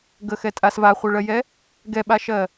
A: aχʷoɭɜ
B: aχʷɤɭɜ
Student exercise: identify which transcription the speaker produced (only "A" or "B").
B